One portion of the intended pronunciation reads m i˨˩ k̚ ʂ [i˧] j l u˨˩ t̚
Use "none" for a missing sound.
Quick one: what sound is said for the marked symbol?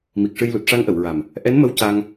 ɨ˧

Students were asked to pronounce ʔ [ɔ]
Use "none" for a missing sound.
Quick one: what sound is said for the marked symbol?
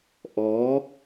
ɔ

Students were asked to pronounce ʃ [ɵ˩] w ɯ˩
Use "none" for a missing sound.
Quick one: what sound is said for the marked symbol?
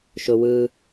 ʊ˩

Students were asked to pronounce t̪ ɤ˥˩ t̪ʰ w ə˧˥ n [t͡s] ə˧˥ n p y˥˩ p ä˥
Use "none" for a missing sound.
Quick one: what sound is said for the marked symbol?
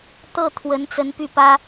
t͡s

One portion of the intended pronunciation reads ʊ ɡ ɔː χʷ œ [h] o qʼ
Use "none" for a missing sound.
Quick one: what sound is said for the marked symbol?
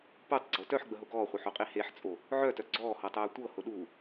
ħ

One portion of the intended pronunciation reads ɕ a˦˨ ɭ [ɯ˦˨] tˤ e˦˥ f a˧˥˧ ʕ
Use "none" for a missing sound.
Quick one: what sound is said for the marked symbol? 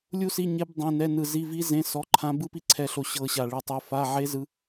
ɯ˦˨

